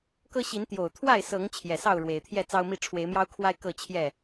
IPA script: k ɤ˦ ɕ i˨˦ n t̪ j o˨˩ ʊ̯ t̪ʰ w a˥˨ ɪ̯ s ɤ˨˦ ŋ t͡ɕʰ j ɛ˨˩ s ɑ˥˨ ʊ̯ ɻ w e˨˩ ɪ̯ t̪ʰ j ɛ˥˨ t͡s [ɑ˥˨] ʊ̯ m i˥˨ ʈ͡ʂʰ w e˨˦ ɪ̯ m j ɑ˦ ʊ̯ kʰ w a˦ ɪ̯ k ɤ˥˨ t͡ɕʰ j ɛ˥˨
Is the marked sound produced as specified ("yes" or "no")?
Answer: no